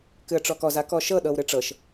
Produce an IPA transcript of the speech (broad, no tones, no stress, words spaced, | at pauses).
kɨə̯ʈ͡ʂɔkɔz akɔʃɤ ɗɤwɾɨʈ͡ʂɤʃ